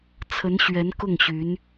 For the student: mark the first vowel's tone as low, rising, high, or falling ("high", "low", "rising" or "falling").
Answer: rising